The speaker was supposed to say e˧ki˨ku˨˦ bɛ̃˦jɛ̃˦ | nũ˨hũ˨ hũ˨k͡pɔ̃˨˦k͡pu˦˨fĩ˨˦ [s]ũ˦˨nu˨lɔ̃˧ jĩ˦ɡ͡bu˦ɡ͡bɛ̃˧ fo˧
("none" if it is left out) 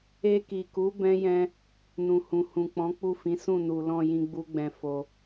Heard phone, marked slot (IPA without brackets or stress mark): s